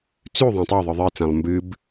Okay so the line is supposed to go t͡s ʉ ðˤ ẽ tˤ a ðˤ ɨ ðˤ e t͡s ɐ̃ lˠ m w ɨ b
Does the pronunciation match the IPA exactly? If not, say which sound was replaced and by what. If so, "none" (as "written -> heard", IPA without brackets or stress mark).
w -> b